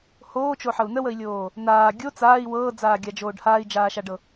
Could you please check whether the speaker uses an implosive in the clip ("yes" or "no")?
no